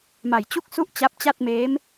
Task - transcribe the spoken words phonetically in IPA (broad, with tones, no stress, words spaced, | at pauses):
ma˨˩j t͡ɕu˥˩k̚su˥˩ʔ t͡ɕa˦˥p̚t͡ɕa˥˩t̚ meː˦˥m